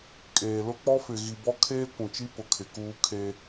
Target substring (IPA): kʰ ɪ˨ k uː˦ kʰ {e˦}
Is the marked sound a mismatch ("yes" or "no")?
no